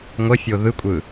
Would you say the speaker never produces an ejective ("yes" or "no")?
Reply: no